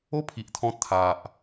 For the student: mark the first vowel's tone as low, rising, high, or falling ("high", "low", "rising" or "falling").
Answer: falling